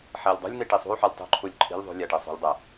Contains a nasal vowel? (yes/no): no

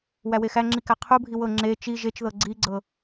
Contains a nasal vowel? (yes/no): no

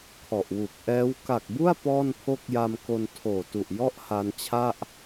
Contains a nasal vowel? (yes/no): no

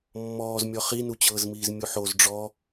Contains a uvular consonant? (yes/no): yes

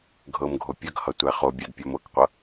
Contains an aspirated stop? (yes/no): no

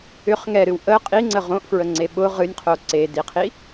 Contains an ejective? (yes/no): yes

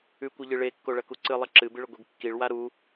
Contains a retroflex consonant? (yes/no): yes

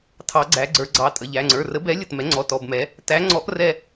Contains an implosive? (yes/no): no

